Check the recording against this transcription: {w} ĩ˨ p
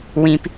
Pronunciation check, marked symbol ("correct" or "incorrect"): correct